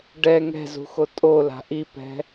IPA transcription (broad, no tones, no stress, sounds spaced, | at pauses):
ɖ ɛ ŋ ɛ̤ z ṳ x o tʼ o l a̤ ʔ i p ɛ̤